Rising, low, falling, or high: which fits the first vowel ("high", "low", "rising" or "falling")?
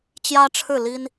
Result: high